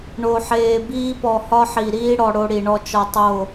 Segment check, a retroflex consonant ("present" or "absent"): present